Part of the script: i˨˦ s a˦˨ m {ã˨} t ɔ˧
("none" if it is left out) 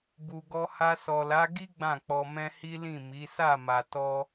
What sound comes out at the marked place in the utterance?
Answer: a˨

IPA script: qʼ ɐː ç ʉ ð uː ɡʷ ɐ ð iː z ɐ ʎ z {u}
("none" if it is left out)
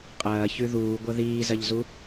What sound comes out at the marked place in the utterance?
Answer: u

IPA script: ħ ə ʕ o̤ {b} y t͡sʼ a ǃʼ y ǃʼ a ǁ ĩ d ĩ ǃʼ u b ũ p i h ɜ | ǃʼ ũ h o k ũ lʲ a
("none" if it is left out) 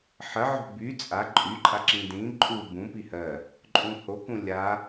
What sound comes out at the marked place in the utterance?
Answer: b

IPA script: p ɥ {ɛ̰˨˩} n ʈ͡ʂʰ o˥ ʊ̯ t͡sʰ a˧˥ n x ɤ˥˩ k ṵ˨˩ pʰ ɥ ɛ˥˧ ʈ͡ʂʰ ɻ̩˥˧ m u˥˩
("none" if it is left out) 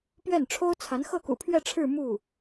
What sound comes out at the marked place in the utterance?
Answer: ɛ˥˩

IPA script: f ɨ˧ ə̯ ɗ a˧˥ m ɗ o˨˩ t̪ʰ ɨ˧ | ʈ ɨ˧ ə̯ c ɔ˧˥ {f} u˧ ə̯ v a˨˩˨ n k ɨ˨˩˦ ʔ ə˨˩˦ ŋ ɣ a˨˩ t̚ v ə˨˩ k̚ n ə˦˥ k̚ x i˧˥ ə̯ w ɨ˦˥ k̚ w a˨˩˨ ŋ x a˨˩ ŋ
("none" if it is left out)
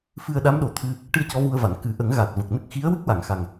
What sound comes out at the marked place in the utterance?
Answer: v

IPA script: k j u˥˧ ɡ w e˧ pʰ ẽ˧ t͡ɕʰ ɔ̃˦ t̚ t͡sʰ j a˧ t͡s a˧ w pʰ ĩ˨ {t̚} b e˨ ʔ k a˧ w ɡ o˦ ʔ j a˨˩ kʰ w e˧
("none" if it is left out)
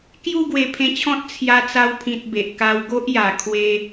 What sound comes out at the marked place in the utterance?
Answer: t̚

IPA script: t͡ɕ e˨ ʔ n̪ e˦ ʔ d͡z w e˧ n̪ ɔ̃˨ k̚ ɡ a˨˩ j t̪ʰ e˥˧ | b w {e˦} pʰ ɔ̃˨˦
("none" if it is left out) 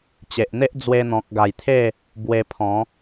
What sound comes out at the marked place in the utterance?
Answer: e˧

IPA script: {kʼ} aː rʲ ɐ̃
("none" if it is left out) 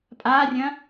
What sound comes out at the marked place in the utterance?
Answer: pʼ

